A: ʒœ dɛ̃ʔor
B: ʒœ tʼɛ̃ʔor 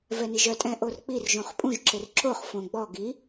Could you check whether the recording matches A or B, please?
B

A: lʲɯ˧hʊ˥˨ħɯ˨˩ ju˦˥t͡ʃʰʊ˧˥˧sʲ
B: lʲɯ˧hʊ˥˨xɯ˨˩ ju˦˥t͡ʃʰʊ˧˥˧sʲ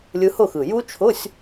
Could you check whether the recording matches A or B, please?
B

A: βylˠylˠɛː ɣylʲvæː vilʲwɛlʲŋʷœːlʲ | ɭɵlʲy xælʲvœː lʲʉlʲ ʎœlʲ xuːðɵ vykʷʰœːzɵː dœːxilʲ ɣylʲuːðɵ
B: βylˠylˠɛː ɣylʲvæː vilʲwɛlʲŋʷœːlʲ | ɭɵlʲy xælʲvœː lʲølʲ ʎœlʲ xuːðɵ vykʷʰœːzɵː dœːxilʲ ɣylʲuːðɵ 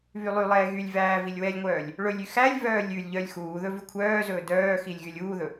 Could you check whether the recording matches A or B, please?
A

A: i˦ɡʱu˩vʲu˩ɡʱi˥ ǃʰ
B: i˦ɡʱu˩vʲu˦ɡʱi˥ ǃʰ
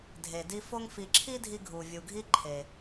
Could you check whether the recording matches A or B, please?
A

